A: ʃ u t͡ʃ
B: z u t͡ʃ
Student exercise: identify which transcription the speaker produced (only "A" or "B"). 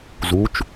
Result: B